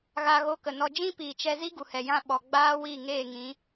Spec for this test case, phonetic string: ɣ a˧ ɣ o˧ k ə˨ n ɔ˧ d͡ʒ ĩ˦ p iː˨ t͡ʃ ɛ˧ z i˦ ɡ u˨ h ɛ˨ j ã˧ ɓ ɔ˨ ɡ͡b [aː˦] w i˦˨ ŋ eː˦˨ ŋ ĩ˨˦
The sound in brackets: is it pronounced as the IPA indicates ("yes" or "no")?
yes